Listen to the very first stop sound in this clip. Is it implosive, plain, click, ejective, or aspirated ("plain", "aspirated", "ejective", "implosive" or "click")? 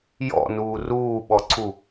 implosive